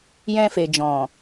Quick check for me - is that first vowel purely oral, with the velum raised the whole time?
no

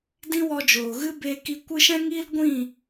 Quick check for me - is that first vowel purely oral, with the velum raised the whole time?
no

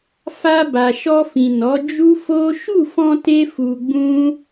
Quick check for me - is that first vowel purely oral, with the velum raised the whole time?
yes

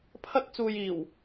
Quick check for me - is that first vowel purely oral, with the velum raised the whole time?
yes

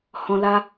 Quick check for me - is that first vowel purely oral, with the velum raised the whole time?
no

